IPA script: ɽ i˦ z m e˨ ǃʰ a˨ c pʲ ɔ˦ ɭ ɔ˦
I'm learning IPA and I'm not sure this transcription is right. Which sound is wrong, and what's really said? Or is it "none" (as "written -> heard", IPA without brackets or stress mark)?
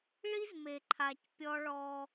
ɽ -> ɭ